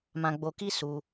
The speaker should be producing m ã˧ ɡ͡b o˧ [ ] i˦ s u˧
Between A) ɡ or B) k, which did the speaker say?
B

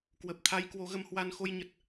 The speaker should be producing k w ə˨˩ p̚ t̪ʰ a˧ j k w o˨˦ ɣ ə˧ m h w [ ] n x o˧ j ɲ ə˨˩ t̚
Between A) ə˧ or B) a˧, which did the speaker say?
B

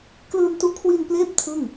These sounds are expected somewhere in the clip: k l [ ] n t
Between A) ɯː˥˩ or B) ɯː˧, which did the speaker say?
B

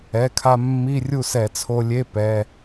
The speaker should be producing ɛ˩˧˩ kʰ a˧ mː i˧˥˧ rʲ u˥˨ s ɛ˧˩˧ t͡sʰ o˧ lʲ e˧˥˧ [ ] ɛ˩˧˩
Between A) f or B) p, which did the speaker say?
B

